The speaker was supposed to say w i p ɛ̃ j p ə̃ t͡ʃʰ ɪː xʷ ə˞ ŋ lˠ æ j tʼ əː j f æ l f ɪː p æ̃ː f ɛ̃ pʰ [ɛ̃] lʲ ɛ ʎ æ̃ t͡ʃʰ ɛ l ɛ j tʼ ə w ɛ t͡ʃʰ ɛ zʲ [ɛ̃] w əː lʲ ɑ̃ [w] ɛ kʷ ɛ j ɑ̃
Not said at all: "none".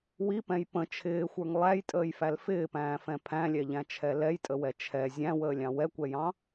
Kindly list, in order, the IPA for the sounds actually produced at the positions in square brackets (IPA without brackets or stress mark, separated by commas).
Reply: æ̃, æ̃, w